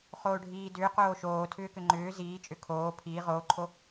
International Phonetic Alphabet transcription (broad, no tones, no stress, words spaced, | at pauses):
χoːɖʱiːdʏː qoːʃoː tʰʏːkʏŋ͡ǃʏː ziːt͡ʃʼʏ kʰoː pʰiː ʁoːǃʰo